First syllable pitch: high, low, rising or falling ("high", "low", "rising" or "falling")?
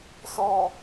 low